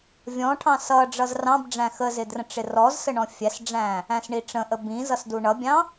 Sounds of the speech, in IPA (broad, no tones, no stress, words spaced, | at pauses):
vʲɔ̃ʈʰɑ̃ sʌ ɖ͡ʐʌzrɑ̃bɖ͡ʐæ̃ xəzɪ drə̃ʈ͡ʂɪrɔzsə ɳɔ̃fʲæsɖ͡ʐæ̃ | æ̃sɳiʈ͡ʂə̃ʔə bĩ zʌsduɳʌbʲɑ̃